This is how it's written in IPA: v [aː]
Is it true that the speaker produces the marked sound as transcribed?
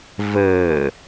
no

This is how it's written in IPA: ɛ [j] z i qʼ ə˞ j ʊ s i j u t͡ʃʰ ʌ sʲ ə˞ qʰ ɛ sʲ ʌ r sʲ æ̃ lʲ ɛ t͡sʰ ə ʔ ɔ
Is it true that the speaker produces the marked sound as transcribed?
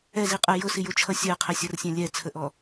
no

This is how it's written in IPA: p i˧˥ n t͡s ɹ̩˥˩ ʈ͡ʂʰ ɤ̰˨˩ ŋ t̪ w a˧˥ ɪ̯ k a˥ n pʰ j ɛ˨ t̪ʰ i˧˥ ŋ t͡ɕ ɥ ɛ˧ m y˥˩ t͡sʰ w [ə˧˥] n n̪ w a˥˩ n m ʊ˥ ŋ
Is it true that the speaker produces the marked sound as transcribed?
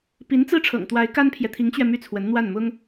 yes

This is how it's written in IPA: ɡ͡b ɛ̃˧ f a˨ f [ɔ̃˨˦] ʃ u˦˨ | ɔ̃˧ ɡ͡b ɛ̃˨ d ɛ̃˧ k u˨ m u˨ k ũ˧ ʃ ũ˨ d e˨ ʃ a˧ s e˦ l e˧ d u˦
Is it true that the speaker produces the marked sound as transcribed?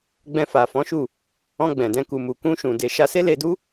yes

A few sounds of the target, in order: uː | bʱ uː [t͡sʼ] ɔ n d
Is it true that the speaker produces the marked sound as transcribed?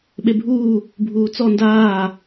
no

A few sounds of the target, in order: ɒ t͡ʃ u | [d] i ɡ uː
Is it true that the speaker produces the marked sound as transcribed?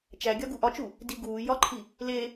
yes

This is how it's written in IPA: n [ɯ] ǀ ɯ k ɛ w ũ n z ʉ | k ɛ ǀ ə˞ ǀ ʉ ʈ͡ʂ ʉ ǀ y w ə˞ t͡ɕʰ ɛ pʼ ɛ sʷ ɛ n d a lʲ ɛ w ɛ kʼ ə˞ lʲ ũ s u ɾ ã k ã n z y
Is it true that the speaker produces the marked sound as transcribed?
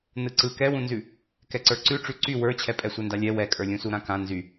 yes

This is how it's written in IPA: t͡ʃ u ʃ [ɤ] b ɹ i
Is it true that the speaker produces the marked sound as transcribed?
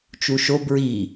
no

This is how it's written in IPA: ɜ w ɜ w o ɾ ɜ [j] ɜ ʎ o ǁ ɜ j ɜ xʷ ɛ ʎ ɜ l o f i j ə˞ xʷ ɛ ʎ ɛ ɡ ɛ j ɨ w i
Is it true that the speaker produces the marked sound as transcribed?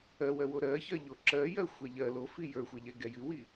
no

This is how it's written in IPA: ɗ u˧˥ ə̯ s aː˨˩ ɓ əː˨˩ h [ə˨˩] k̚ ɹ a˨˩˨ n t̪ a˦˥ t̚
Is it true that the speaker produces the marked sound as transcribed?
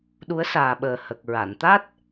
yes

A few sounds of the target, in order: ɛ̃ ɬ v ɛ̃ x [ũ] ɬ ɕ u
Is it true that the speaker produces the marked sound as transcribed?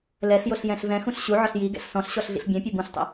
yes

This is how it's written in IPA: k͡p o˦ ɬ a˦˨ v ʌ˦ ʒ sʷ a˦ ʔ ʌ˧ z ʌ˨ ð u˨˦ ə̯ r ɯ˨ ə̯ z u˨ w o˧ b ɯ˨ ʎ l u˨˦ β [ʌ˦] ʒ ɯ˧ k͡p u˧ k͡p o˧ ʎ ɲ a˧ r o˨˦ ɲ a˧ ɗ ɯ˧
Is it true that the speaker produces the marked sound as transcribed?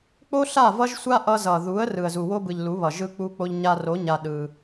no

